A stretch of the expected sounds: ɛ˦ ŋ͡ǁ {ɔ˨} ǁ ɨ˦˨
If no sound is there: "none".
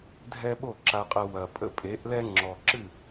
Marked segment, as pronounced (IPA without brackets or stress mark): ɔ˨